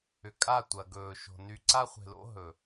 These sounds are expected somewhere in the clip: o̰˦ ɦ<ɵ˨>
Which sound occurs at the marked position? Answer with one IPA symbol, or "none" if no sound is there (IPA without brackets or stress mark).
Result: ɵ˨